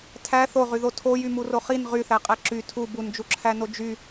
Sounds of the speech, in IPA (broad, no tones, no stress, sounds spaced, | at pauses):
tʰ æ θ o ʁ y ð o tʰ o j y m u r o χ i n ʁ y θ æ qʼ æ ǁ y tʰ u b u n d͡ʒ u ǁʰ æ n o d͡ʒ y